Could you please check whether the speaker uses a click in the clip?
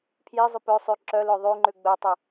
yes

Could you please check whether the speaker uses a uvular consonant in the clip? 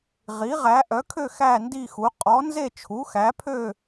yes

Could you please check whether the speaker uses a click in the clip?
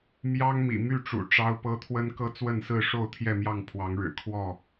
no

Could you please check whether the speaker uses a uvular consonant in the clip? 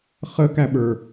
yes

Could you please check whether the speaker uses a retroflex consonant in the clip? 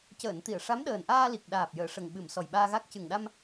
yes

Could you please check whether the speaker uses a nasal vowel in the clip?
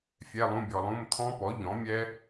yes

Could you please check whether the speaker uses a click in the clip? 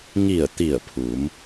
no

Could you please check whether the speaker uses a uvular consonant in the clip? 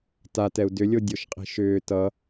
yes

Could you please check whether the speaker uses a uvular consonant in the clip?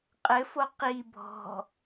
yes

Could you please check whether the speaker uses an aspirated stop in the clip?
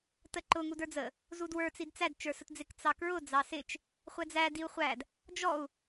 no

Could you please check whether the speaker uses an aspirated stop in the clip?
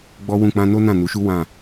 no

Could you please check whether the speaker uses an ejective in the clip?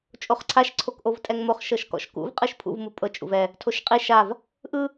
yes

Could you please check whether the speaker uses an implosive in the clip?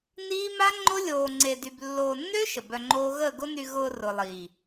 no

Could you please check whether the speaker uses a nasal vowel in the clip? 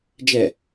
no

